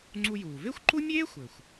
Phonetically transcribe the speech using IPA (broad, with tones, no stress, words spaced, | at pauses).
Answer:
ŋ͡ǀu˧juː˩ ve˥xʷǃu˥ mʲeː˥xʷɘ˩xʷ